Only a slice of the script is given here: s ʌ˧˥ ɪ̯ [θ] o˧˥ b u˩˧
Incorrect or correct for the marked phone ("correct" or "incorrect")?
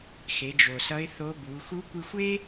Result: correct